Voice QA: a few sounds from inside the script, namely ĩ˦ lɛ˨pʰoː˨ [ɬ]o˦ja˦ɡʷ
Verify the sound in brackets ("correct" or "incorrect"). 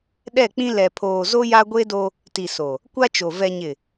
incorrect